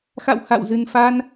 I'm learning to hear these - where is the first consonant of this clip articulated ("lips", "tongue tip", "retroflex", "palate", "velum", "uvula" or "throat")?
velum